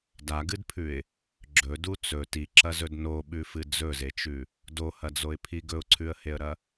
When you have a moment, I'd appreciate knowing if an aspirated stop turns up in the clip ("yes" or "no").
yes